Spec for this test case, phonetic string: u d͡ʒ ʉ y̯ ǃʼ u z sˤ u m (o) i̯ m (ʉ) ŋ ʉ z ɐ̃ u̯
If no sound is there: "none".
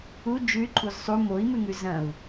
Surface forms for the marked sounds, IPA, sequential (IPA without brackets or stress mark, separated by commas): o, ʉ